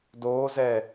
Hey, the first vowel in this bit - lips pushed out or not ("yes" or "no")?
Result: yes